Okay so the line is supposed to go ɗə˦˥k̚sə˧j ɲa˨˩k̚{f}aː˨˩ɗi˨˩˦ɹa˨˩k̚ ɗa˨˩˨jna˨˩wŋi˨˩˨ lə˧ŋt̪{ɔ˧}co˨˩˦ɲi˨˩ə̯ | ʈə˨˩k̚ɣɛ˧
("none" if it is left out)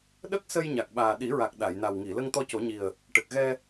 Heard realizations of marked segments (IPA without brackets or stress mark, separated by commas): ɓ, ɔ˧